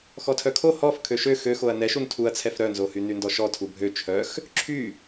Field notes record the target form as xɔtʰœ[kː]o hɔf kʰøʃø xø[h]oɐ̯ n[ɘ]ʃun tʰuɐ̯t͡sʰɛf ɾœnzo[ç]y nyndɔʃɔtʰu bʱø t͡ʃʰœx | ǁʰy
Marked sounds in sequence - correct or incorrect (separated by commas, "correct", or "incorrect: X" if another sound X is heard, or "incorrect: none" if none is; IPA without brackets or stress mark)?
incorrect: kʰ, incorrect: x, incorrect: ɛ, incorrect: h